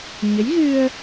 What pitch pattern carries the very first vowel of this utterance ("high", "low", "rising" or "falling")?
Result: rising